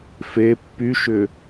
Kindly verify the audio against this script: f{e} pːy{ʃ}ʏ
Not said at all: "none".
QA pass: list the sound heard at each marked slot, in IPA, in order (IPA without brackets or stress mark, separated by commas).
e, ʃ